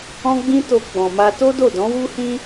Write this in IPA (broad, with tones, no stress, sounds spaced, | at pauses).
ɔ̃˦ ɡ͡b ĩ˦ t o˧ ɡ͡b ɔ̃˨ m a˧ t o˦ d o˦˨ d ɔ̃˨˦ w u˦ h ĩ˦